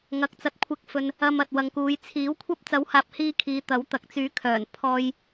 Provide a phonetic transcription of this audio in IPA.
ŋɐ˨˥k̚t͡sɐ˨˥t̚kʷʰɪ˧k̚fɵ˧n | ɐ˧m ɐ˨t̚wɐ˨ŋkuː˨˧j t͡sʰiː˨˥wkʷʰɐ˥p̚ t͡sɐ˨˥whaː˨p̚hiː˧ kʰiː˨˧t̪ɐ˨˥wt̪ɐ˨k̚t͡syː˨˥ kʰœː˨˩n pʰɔː˧j

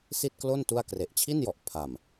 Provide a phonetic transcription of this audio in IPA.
si˥˩t̚klo˥˩n tu˥˩a̯ kre˨˩ʔt͡ɕʰi˥˩njɔ˨˩ʔ pʰa˨˩m

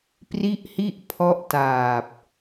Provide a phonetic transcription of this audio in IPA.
pri˥˩ʔhi˥˩ʔ pʰɔ˦˥ʔtaː˨˩p̚

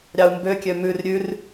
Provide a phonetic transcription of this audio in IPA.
ɾʲɑu̯mbøkʲø mʉr ɾʲʉr

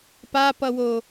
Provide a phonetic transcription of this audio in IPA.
papʌwo

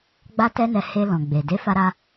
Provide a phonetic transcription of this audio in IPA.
ɡ͡ba˦tɛ˦nɛ˧ he˧lɔ̃˨ɡ͡be˨ de˨˦fa˧ɾa˧

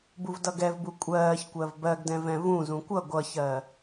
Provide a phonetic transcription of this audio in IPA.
buvdʌɡɛvbu kʷʼɜːçkʷɜv bɜɡdɛ̃ vɛ̃vũzũ kʷʌ ɡʷʌçɜ

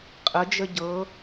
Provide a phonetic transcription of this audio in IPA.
qʼəd͡ʒə ɟɤ

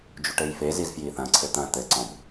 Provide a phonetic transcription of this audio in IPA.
d͡ʒuʈɘjfe zizfjiθɐ̃ ǀʰɘt̪ɐ̃ t̪ɘǀɔ̃b

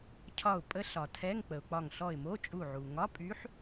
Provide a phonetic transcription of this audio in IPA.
cʰɒ˧˩ʊ̯pʼə˧˥ɬɒ˩ tʰɛ˧˥˧ŋk͡pə˩ʊ̯k͡pɒ˧˩ŋ ɬɔ˧˩ɪ̯mo˧˥˧t͡ʃʼu˧˩ʕu˩ ŋɒ˧˥˧pʼy˧˥ħ

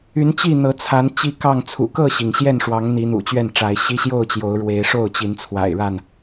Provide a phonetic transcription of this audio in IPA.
y˨˦nt͡ɕi˥˨ n̪ɤ˨˦t͡sʰa˨˦n t͡ɕi˦kɑ˥˨ŋ t͡sʰṵ˨˩ kɤ˥˨ɕi˩ŋ ɕjɛ˥˨nʂwɑ˨˦ŋ n̪i˨˦n̪ṵ˨˩t͡ɕɥɛ˥˨nʈ͡ʂa˨˦ɪ̯ ɕi˦ɕjo˥˨ʊ̯t͡ɕjo˨˦ʊ̯ ɻwe˨˦ɪ̯ʂo˥˨ʊ̯t͡ɕi˨˦nt͡sʰwa̰˨˩ɪ̯ ɻa˥˨n

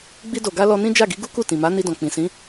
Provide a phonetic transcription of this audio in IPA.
ɡ͡bi˧do˨ɡa˧ lɔ˧nĩ˦ d͡ʒa˦˨ɡi˨˦ɡu˦ku˦˨ tĩ˨ma˨˦ ni˧dɔ̃˨ k͡pĩ˨ sĩ˨˦

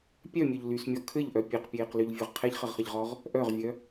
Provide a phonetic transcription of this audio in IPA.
pʲœmʲœʎ lysmʲɔ kʰɘʎʔœ pʲeqpʲeːqlyʎvʲœʁ qʰɛʎχɘʁχɘʎʁɔʁ | ʔœʁvʲœ

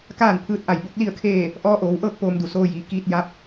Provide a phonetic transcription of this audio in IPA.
kaː˥˨npʰɯː˧˥t̚ʔa˧˩j bo˧˥k̚li˥˨ə̯kʰeː˥˨ | ʔɔː˧˥ʔoː˩˧wʔɤː˥˨k̚ poː˧mdu˧˩soː˧jiː˩ kiː˧t̚ ja˧˥p̚

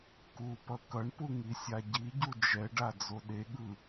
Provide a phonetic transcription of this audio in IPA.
kupʌ kʌɳpu ŋisʲaɟiɟu d͡ʒɛɖa d͡zoɗeɠɯ

